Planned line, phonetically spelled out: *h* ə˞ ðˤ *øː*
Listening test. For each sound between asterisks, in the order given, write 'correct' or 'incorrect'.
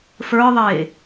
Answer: incorrect: f, incorrect: eː

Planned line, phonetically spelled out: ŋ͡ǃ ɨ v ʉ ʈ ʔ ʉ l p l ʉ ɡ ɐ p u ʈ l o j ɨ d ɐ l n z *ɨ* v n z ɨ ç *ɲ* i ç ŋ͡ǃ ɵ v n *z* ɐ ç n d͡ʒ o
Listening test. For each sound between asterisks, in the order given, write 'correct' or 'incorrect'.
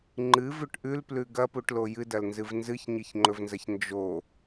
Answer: correct, correct, correct

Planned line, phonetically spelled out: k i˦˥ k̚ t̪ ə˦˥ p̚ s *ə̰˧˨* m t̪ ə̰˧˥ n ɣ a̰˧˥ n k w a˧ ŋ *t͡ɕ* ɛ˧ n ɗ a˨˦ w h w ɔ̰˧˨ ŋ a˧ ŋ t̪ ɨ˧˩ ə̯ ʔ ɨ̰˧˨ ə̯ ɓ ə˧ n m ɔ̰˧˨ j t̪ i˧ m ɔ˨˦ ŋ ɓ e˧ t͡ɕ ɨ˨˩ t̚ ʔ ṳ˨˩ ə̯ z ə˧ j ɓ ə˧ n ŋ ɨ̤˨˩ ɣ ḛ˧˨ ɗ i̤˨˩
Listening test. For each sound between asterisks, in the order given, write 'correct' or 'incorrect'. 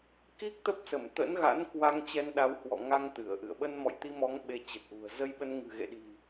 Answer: incorrect: ə˧˩, correct

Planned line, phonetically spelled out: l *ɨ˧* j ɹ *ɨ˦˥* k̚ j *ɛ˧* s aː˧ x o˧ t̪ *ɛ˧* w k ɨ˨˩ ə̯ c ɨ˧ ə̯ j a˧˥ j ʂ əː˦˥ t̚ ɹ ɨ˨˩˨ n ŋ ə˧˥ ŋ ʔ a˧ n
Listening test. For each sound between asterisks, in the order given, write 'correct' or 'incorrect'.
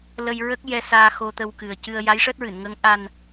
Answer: incorrect: ə˧, incorrect: ə˦˥, correct, incorrect: ə˧

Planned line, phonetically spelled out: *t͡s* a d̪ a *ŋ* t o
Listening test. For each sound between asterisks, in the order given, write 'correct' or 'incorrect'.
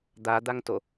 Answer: incorrect: d̪, correct

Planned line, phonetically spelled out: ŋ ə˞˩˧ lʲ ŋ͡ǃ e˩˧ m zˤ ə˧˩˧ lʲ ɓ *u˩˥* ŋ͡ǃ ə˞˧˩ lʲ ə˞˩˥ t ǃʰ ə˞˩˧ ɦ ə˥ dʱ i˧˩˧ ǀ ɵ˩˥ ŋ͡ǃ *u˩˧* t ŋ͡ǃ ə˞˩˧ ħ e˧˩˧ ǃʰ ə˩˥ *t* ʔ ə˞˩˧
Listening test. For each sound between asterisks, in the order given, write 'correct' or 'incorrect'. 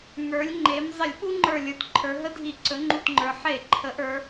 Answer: incorrect: u˥, incorrect: u˧˩, incorrect: none

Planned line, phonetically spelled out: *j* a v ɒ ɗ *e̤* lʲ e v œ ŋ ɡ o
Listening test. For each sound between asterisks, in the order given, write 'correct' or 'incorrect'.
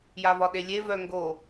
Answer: correct, incorrect: e

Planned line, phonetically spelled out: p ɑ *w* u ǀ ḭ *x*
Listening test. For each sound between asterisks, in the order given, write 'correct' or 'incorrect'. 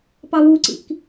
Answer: correct, incorrect: k

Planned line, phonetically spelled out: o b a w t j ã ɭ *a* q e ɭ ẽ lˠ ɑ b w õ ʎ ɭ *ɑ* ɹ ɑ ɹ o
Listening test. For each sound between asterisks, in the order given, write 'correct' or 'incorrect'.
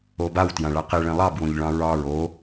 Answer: correct, incorrect: ɑ̃

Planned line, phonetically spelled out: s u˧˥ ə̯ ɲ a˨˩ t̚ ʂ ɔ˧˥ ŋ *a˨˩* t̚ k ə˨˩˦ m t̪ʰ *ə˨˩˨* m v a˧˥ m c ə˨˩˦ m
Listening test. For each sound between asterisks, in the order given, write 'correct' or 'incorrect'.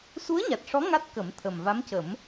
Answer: incorrect: a˦˥, incorrect: ə˨˩

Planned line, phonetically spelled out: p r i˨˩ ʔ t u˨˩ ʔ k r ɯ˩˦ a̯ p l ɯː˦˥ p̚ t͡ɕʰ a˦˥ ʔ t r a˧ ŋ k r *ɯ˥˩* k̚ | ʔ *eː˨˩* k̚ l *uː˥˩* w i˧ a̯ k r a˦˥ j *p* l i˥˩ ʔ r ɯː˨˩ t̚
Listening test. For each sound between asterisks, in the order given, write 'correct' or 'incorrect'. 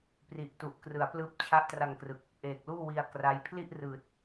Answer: incorrect: ɯ˨˩, correct, correct, incorrect: pʰ

